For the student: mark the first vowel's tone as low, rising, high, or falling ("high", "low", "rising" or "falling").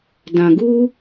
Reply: low